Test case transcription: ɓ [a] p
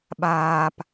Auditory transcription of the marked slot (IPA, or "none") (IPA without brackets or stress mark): aː